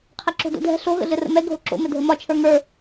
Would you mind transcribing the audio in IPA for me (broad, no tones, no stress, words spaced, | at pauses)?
qʰɛǁo̤do̰dʱɛ̤ ɬo ɣə̰ɮɘrə̰mɛ ɡʱoǁo̰ mɘdʱəmɒ t͡ʃʰə˞ŋə˞